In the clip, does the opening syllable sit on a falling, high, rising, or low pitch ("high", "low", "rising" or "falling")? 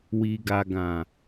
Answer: low